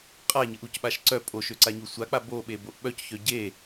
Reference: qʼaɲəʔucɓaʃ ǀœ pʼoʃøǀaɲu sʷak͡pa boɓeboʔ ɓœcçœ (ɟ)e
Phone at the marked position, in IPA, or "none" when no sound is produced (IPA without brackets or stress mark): ɟ